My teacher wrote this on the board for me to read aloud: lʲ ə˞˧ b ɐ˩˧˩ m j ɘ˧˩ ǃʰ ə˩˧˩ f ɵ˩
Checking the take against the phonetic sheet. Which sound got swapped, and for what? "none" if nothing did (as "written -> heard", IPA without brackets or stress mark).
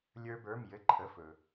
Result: ɐ˩˧˩ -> ə˞˩˧˩